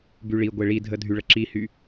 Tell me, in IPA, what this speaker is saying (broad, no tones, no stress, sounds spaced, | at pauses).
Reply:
b y ɭ i ɡʷ e ɭ i dʱ ə dʱ y ɭ ə ǁ i h y